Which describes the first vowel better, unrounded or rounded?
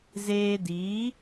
unrounded